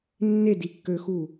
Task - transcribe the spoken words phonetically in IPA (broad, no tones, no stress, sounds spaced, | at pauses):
nː e d i kː ø x u